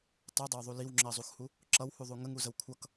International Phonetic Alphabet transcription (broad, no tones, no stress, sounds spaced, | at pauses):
tˤ u dˤ ə w ðˤ u l i w ŋ͡ǁ ɜ zˤ u x h u | ǁ ʌ w h u ðˤ u ŋ ə ŋ u z ə w kʷʰ ʌ k